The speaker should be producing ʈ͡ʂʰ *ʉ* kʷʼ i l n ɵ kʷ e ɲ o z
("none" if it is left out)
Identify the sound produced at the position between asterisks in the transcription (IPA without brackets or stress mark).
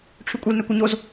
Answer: ʉ